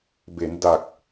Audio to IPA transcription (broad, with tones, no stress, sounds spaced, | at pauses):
b e˩˦ n d a˨˩ k̚